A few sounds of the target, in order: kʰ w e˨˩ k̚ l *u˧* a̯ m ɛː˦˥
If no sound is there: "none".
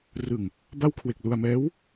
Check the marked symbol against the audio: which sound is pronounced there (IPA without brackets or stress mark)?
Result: u˧